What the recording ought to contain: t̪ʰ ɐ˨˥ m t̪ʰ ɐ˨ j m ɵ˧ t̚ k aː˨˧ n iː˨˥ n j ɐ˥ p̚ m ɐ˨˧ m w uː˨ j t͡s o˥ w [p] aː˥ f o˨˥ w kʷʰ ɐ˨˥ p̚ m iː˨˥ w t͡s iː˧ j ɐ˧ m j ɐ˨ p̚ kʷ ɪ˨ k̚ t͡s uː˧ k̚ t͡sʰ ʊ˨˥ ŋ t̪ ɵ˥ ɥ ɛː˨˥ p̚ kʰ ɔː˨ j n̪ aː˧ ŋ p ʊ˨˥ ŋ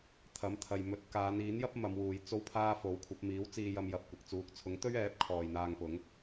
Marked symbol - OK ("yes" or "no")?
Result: no